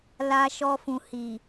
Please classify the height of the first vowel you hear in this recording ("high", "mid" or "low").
low